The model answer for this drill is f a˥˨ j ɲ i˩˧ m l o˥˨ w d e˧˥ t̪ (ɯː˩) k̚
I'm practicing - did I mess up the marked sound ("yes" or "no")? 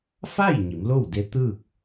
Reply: yes